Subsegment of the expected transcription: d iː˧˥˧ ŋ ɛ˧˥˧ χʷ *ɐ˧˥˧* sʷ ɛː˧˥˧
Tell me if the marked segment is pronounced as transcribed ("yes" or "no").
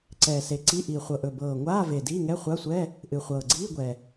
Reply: no